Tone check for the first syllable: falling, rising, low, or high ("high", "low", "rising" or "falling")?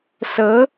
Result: rising